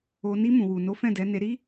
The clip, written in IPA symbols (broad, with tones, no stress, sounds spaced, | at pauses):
o˧ n i˧ m ũ˨ w u˨ n o˨˦ f ɛ̃˦˨ d ɛ˨˦ n e˧ ɾ i˦